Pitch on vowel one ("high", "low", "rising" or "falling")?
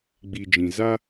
low